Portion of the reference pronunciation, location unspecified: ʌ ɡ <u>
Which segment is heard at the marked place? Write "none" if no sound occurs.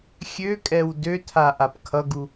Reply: u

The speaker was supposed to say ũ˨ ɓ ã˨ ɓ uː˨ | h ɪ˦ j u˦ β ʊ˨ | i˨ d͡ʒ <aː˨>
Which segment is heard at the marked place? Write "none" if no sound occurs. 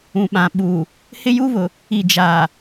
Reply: aː˨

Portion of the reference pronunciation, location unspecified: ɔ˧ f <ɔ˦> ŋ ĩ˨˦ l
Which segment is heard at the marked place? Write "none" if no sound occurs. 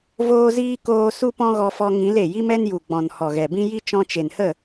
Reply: ɔ˧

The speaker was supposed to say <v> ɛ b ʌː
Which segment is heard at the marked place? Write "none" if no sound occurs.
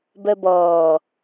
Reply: b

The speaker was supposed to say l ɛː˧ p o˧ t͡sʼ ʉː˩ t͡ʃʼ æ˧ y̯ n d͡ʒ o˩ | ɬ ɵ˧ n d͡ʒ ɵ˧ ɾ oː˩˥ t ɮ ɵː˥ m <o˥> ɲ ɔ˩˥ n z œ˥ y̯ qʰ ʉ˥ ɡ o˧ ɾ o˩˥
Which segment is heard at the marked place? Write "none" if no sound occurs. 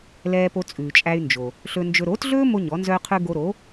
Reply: o˥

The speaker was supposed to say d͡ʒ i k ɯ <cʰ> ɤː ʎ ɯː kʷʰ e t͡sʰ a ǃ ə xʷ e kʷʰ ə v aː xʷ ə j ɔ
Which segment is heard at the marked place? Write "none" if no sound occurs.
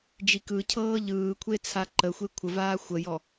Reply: cʰ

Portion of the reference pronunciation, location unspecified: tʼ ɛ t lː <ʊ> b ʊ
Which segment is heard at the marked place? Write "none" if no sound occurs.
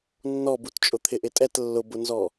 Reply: ʊ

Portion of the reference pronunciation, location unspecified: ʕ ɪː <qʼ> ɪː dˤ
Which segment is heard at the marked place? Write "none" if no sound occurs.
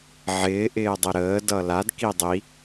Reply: ʔ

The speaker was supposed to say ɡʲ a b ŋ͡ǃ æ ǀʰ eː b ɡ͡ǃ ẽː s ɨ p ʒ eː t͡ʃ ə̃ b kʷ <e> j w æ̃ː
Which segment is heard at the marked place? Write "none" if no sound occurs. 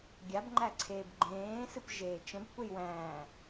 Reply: e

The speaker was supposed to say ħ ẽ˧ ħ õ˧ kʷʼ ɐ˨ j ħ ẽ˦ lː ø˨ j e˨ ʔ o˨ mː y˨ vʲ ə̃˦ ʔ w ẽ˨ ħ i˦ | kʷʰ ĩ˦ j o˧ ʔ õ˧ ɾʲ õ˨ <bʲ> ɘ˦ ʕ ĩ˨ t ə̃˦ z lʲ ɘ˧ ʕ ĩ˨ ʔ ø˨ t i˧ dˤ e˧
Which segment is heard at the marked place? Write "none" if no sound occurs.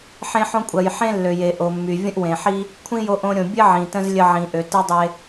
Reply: bʲ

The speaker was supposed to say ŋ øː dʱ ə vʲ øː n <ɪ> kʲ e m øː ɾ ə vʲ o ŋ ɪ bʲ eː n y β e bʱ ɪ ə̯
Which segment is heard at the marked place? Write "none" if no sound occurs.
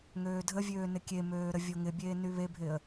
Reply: ɪ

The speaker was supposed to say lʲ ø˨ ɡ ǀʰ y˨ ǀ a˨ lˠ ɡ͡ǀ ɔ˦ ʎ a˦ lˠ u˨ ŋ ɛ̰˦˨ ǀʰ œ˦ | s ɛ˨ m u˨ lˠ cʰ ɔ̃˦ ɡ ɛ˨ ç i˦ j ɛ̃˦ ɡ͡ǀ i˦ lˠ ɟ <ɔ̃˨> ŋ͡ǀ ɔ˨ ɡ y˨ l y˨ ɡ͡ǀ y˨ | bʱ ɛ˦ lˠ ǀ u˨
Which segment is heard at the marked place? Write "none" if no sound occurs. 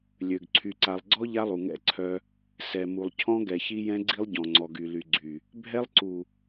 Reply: ɔ̃˨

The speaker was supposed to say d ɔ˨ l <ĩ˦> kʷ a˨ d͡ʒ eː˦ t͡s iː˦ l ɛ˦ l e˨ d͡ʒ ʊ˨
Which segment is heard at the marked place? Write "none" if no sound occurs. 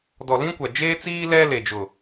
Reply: ĩ˦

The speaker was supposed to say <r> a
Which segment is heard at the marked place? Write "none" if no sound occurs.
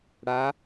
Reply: ɽ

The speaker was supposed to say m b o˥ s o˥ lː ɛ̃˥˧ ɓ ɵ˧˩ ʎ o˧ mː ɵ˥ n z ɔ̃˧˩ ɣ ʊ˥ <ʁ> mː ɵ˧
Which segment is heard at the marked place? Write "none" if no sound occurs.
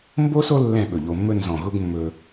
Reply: ɡ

